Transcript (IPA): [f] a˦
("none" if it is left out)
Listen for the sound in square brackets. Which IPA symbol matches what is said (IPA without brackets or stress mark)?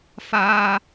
f